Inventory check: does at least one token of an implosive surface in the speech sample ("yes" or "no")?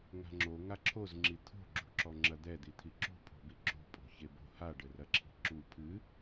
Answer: no